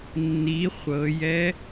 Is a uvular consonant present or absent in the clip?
present